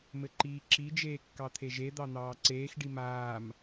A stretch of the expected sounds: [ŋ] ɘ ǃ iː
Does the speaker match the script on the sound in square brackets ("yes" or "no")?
no